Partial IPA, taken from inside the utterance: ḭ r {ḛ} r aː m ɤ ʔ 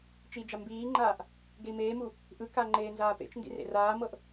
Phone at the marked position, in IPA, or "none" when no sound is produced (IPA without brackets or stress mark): ḛ